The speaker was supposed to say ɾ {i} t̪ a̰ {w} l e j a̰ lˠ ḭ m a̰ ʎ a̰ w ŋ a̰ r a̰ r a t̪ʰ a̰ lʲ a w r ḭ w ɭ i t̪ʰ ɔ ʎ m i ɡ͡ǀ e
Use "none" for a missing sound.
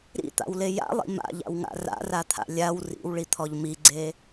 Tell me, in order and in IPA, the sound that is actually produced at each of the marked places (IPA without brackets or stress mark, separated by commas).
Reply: ḭ, w